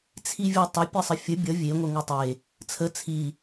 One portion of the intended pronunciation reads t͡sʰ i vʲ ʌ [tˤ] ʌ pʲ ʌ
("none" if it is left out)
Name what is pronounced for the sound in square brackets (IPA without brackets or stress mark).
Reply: tˤ